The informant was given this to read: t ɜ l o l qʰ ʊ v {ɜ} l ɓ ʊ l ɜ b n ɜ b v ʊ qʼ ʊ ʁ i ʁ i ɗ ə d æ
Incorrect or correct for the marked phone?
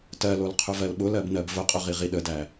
correct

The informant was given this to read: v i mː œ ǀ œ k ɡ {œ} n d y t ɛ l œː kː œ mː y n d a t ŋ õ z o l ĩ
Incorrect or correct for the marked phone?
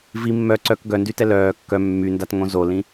correct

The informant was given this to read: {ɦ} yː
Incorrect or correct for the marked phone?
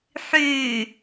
incorrect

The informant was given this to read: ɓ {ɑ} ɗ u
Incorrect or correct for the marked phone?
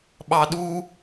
correct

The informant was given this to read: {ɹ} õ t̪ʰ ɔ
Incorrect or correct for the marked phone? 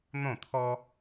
incorrect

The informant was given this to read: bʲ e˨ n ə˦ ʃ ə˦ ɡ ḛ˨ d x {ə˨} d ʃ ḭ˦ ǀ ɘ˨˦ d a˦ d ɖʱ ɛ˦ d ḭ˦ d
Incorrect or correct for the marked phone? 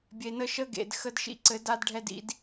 incorrect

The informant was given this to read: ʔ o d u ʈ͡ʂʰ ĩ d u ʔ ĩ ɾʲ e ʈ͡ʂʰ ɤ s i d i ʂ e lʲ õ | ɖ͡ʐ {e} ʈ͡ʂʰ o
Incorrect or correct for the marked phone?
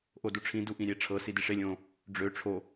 incorrect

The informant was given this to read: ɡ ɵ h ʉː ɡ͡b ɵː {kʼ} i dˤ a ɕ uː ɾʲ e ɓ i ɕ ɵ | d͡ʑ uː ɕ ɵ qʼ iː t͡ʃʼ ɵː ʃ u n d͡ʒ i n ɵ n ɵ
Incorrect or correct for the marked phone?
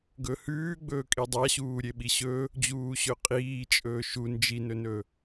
correct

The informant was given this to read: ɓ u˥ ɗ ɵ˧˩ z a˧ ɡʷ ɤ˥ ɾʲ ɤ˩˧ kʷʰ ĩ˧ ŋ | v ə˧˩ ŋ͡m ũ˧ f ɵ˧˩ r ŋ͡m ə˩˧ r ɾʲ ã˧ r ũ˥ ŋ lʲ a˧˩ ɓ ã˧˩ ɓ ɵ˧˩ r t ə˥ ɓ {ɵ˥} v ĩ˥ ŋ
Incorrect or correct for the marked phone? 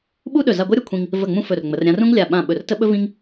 correct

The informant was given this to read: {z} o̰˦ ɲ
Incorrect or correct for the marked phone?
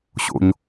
incorrect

